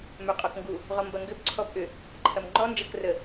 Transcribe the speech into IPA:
m œ qʼ ɔ k ŋ ɡ u | ʁ ɔ m b ɐ ŋ ɡ ʏ b ǀʰ ɔ b ʔ ʏ | ǃʰ ɐ m ŋ͡ǃ ɔ n d͡ʒ ɐ k r ə

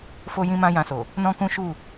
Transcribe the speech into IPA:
f o˦ j ĩ˦ m ã˦ j ã˧ s o˨ | n ɔ̃˦ k ũ˦ ʃ u˦˨

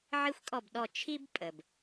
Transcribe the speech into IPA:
ʕ i˦ xʷ kʼ ɔ˦˨ b ɗ ɔ˦˨ t͡ʃʰ i˦ b pʼ ə˩ b

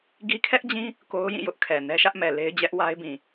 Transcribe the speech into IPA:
ɡ i˦ kʰ ɛ˦ ʔ d͡ʑ ĩ˦ | k o˦ ʊ̯ j ĩ˦˨ j ʊ˦ ʔ kʰ ɛ˨ n ɛ˦ ʃ ä˦ ʔ m ɛ˨ l e˦ ɪ̯ d͡ʑ ɛ˦ ʔ w a˦ ɪ̯ b ĩ˨

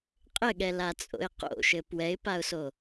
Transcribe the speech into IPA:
qʼ ɘ ɠ ɛ l a t͡sʼ o̰ ɪ̯ q o̰ ʃ ɘ p w ɛ ɪ̯ p a ʊ̯ s o

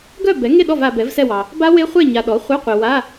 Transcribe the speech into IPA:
ɡ œ˥˨ b ɛ˩˥ ŋ e˥˨ ɗ ɔ˥˨ v a˨ b ɛ˩˥ v s ɛ˥˨ w ɑ˨ | b a˦˥ w e˦˥ χʷ e˥˨ ɲ a˨ ɗ ɔ˩˥ χʷ œ˧˥˧ qʷ e˨ w a˧˥˧

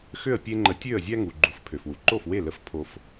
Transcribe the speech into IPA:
x ø˥˩ ə̯ pʲ e˧ ŋ͡ǃ ə˩˥ tʲ ø˥˩ ə̯ zʲ æ˥ ŋ u˩ ɡ͡ǃ u˩˥ f pʰ ø˩ f w u˩ ǃ o˥˩ f w e˥˩ l ə˧ f pʰ o˧ f

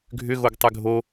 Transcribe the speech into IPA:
ɡʱ ʏ ɣ o ɡ tˤ ʏ ɡʱ o

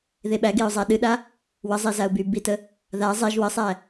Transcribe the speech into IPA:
ð e ɓ æ ɡ e ʊ̯ zˤ æ ɗ ɨ ɗ a | w ə zˤ e z a ʊ̯ b y b i t ə | ð a zˤ e ʒ w ə sˤ æ

